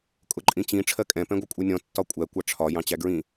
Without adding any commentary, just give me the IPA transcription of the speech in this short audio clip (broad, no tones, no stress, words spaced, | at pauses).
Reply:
kʼʊǃʼĩt͡ɕĩ ʈ͡ʂʰɜkʼɛ̃ pɛ̃ɡʷʌkʷʼɛnʲɔ̃ tːɒkʷʼæ kʷɑʈ͡ʂʰɒ jɑ̃t͡ɕæɡɹĩ